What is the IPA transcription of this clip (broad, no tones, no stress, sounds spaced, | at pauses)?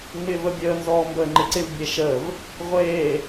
ŋ͡m ɪː v ə bʲ əː n z ɔː m b əː ŋ͡ǃ ɪ ǀ ɪ v bʲ e ʃ ə v | ʁʷ eː